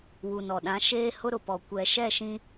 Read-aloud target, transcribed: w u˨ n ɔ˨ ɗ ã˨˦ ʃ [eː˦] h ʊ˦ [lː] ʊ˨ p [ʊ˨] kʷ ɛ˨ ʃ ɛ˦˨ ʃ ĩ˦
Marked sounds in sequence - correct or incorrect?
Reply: correct, incorrect: ɾ, incorrect: ɔ˨

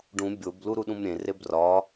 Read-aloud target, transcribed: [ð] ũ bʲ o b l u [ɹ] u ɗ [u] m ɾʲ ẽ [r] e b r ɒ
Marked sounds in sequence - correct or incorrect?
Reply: incorrect: ɖ, incorrect: ɾ, incorrect: ũ, correct

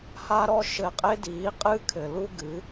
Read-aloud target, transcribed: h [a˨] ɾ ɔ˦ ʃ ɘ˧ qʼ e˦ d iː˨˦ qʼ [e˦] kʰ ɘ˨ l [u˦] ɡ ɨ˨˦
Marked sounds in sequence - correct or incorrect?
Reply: incorrect: a˦, incorrect: ɨ˦, correct

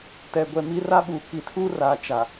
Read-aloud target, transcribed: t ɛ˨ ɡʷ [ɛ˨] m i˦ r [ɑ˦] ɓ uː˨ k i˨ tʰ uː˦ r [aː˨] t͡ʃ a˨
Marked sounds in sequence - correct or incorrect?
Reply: correct, incorrect: a˦, correct

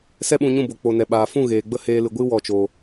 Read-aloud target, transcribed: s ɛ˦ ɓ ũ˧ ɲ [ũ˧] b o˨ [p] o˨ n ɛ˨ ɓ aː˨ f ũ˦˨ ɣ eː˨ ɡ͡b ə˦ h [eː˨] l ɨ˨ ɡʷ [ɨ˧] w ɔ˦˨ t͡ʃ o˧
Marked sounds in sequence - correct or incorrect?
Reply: incorrect: ũ˦˨, incorrect: k͡p, incorrect: eː˧, incorrect: ɨ˦

